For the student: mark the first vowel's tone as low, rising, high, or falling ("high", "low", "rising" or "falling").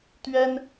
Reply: high